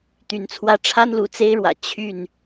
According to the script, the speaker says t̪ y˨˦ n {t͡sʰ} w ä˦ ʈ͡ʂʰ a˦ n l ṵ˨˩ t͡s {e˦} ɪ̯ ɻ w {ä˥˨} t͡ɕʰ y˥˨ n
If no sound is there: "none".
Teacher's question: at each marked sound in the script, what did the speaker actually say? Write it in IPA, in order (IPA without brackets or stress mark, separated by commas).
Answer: t͡sʰ, e˦, ä̰˨˩